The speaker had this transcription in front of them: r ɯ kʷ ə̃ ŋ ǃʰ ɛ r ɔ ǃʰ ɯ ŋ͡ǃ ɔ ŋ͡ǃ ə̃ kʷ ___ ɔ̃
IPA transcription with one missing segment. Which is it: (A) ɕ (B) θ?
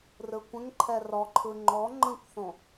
B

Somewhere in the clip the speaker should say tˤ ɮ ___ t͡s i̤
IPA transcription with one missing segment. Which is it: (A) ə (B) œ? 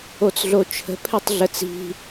A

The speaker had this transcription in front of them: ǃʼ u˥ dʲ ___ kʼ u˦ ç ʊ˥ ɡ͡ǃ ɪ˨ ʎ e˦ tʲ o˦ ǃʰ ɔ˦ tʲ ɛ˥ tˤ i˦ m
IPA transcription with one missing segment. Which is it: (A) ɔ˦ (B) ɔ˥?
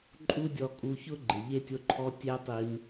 A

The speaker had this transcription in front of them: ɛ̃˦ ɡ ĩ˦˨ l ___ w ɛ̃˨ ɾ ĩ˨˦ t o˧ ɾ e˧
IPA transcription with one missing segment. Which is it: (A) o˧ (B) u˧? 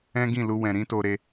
B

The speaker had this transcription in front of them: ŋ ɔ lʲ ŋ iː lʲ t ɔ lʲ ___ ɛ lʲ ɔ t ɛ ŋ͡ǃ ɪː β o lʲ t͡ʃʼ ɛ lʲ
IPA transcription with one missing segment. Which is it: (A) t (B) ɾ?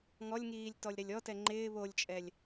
B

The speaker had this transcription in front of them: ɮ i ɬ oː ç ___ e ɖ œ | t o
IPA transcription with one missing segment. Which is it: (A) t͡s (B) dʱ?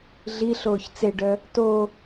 A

